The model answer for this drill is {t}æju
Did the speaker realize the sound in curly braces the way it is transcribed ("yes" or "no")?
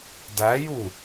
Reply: no